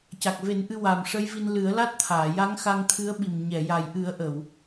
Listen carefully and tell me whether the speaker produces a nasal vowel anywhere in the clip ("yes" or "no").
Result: no